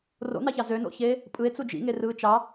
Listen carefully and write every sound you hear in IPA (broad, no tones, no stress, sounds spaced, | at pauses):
r o̰ n ɑ ç ɑ z ø n o̰ ç eː | pʼ ɯ e̯ t͡s u d͡ʒ ḭ ŋ e r ɯː t͡ʃ ɑ